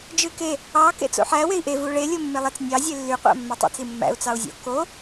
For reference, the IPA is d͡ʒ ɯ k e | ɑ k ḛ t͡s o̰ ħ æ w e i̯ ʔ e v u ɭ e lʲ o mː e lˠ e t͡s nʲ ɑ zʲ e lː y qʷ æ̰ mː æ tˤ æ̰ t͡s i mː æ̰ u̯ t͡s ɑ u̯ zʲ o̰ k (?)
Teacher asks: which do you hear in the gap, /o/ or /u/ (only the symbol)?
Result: o